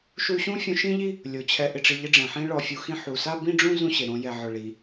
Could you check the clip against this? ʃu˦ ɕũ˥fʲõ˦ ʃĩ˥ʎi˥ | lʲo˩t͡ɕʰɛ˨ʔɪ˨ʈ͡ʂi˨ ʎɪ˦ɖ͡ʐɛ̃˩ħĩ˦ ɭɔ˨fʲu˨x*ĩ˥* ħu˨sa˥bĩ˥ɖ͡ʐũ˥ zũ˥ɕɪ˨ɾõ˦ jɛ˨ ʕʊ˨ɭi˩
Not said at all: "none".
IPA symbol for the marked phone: ĩ˦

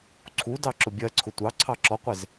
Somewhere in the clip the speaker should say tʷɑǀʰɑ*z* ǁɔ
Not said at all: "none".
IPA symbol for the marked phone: none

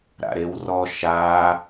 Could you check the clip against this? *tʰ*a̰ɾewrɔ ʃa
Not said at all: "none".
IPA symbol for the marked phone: ɾ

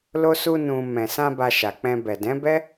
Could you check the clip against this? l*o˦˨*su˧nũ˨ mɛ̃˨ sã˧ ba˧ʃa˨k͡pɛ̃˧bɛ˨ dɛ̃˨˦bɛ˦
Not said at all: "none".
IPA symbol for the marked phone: o˧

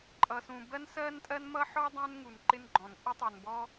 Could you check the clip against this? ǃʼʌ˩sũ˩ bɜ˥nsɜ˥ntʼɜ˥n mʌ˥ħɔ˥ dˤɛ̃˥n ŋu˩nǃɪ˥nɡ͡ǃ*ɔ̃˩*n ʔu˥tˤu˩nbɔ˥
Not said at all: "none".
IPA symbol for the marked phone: ɔ̃˩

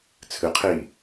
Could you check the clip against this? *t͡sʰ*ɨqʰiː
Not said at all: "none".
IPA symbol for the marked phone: t͡sʰ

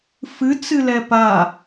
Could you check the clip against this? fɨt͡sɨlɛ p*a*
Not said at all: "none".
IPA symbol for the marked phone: a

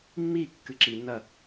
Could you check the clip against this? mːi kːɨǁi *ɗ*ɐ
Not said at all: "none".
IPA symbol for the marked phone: n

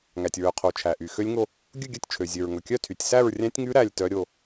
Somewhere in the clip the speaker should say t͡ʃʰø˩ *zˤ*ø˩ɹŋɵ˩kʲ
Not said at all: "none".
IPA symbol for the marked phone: zʲ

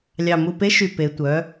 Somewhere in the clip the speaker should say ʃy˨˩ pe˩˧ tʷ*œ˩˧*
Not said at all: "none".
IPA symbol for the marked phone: œ˩˧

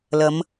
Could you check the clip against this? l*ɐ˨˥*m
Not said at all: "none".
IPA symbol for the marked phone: ɐ˨˧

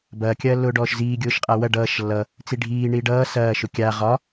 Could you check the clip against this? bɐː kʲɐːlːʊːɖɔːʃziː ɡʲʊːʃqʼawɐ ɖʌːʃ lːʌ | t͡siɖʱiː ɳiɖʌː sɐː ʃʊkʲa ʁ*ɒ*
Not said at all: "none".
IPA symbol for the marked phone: ɒ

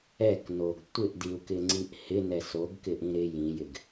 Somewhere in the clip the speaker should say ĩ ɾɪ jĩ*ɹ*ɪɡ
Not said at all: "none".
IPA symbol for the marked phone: j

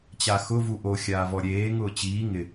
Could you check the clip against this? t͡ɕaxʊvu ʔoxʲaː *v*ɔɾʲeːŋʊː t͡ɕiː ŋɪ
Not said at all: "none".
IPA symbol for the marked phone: v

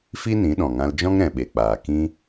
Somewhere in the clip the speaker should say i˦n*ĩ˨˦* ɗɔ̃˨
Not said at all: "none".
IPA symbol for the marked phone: ĩ˨˦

